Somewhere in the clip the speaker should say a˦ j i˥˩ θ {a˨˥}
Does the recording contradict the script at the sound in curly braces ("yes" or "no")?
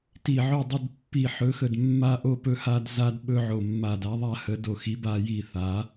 no